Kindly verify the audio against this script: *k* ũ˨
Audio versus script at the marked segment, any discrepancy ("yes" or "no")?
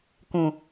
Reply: no